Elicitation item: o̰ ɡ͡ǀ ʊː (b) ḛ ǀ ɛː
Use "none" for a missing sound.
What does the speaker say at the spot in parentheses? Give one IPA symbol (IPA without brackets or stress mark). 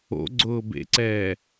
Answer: b